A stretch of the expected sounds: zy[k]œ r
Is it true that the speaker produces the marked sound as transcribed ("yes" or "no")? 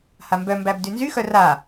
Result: no